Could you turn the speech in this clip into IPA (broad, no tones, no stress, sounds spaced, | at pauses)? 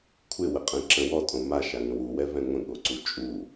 kʷʰ ɪ w ə qʼ ɛ̃ ǁ ə̃ w ɔ tʼ õ m a ʃ a ŋ ə̃ w u w ɛ v ɛ̃ ŋʷ ə̃ ɠ o ǀ u t͡ʃʼ u